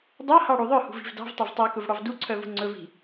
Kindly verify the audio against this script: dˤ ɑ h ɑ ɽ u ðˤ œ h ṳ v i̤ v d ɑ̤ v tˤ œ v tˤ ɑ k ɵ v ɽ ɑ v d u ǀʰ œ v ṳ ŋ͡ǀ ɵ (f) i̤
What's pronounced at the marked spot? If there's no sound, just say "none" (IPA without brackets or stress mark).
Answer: v